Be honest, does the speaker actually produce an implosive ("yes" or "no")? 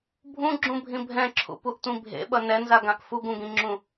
yes